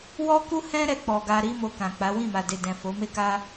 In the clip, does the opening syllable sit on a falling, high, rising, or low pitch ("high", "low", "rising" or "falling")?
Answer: high